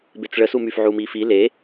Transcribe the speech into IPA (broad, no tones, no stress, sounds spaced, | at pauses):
b e t͡s ɭ ə s u m y f ʕ u m i f i l e